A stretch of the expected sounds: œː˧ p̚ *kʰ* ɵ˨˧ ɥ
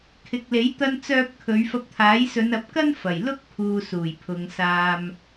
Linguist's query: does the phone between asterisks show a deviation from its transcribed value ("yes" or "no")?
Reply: no